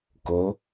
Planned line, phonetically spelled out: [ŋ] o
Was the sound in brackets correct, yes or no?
no